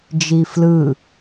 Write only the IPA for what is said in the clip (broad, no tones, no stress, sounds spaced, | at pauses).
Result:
d͡ʒ i f l ɯ